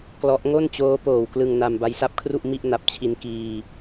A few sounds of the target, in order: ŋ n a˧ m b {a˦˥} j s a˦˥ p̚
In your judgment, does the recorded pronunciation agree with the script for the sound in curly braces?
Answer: yes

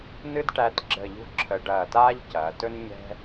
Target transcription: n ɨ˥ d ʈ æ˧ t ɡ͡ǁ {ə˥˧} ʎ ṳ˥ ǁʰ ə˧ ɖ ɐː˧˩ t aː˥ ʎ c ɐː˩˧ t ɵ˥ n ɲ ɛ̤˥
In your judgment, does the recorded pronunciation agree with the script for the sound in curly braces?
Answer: no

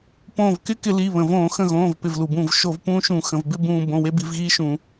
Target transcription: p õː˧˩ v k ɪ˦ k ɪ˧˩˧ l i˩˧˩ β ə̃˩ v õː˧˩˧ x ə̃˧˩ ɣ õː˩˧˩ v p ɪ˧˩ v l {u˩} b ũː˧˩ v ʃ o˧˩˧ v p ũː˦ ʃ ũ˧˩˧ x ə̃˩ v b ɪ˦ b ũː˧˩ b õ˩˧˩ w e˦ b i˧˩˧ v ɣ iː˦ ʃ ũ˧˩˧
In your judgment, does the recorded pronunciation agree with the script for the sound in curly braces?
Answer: yes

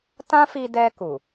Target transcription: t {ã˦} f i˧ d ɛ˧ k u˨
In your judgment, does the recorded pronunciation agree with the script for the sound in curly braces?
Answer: yes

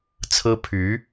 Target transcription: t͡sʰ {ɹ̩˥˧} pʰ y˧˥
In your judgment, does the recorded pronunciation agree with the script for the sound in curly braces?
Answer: no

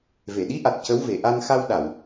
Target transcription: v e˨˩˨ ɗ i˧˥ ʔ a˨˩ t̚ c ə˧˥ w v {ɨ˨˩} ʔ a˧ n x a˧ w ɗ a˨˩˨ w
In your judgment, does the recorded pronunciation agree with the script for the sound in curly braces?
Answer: no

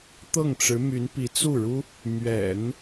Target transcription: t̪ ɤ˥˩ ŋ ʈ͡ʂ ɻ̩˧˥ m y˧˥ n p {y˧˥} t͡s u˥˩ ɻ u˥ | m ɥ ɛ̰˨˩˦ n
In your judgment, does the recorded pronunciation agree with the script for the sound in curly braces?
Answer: no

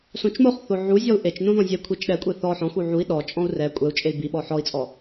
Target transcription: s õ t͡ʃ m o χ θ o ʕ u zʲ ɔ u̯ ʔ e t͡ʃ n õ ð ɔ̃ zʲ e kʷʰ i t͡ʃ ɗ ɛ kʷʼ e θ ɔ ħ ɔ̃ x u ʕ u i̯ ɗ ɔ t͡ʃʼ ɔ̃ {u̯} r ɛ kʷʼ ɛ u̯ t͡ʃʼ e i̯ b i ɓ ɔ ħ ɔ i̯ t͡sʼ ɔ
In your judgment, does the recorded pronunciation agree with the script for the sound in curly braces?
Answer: yes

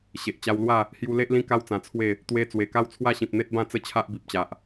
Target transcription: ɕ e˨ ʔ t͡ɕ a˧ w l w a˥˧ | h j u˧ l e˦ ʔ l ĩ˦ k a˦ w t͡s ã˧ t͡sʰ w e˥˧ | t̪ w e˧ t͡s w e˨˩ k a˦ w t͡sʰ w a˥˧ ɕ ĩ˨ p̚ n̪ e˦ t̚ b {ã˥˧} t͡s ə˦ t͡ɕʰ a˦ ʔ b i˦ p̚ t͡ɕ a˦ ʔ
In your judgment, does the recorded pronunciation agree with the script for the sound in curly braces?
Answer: yes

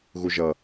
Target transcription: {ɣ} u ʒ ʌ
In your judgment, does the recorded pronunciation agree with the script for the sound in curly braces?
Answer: yes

